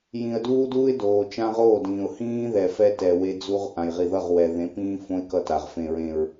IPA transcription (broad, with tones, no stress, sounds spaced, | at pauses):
j ĩ˨ ə̯ d uː˦ d uː˦ ɪ̯ d oː˨ t͡ʃ ã˦ ʁ oː˦˨ d ĩː˨ ʊ̯ h ĩː˦ ð ɛ˨ f ɛ˦ t ɛ˨ w e˦ d͡z u˦ ʁ ʔ ã˨ j ʁ i˨ ð ʌ˦˨ ʁ w ɛ˨ ð ẽ˨˦ p ĩː˦ f õ˦ ɪ̯ k ʌ˦ t a˨ ʁ f ẽ˨ ɹ ẽ˨ ɹ